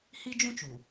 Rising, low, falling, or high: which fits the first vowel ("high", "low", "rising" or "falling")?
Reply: high